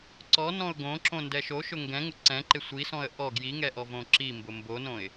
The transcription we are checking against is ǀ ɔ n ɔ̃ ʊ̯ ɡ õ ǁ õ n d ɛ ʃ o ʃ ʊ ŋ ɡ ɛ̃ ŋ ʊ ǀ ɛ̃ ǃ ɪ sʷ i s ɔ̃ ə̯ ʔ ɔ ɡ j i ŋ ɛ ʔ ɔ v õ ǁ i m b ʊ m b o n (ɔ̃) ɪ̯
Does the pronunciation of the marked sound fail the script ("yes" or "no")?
yes